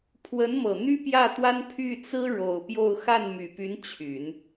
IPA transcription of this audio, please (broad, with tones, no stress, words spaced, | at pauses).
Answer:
pʰwə˧˥nmɤ˨˩ n̪y˥pjä˥˩t̪wa˥n pʰy˥˩t͡sɹ̩˥ ɻo˨˩ʊ̯pjo˥˧ʊ̯ xa˥˩nmy˨˩py˧˥n t͡ɕʰy˨˩˦n